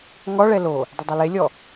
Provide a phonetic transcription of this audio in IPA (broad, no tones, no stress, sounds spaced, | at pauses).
ŋ ɔ ɭ ɛ l o | dˤ ɪ dˤ a l e lʲ ɔ